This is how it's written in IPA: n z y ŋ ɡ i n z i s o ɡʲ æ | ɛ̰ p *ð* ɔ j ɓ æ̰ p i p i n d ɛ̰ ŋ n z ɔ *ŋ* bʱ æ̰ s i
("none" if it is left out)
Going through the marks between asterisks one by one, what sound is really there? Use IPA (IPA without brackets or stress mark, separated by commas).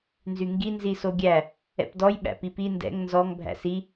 d, ŋ